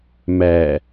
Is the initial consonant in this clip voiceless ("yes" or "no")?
no